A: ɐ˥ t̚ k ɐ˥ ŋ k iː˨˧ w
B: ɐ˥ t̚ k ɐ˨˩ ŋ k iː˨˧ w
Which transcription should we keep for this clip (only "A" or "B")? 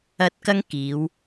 A